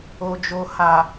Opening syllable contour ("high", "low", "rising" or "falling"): low